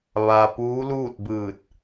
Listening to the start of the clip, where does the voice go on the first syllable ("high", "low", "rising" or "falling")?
low